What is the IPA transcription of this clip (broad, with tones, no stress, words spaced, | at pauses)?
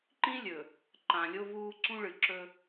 ǃĩ˦ lʲɵ˨ | ǃã˨ lʲo˦vuː˦ ǀũ˦ɭɨ˨ǁɵ˦